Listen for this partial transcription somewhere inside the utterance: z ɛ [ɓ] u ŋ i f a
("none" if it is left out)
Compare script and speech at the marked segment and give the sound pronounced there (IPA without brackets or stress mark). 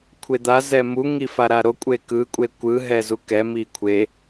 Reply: m